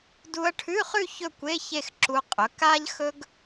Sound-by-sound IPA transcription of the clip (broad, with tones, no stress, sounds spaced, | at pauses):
d u˧ ɐ̯ ʈʰ ʉ˧˥˧ χ ʉ˥˧ ç ɵ˥˧ kʷ e˧˥˧ ç e˥˧ x ǁ u˧ qʼ ɵ˩˥ k a˥ ʎ x ɵ˥ ɡ